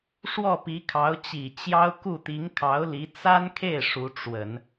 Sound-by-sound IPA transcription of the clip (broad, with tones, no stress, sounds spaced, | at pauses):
ʂ w ɔ˥˩ p i˧˥ kʰ ɑ˧˥ ʊ̯ t͡ɕ i˨˩ t͡ɕ j ɑ˥ ʊ̯ k u˥˩ t̪ i˧˥ ŋ kʰ ɑ˧˥ ʊ̯ l i˧˥ t͡s a˥ n kʰ e˥˩ ɪ̯ ʂ u˧˥ ʈ͡ʂ w ə˨˩˦ n